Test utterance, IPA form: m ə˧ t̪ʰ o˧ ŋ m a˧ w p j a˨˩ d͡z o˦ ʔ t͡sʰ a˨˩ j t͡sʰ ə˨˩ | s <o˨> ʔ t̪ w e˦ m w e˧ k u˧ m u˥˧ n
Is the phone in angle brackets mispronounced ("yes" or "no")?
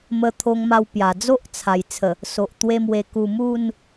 no